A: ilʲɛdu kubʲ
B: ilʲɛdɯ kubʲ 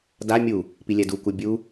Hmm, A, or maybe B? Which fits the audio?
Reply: A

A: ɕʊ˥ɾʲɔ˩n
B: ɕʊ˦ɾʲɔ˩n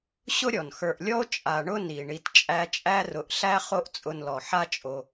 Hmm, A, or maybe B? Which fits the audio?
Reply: B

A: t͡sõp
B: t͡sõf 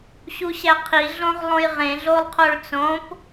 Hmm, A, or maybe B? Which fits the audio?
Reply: A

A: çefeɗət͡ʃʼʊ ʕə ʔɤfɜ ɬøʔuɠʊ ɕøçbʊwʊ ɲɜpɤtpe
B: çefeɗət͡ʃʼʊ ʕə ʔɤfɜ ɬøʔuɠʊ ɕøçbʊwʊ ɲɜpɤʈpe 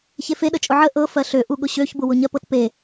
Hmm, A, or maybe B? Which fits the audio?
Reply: A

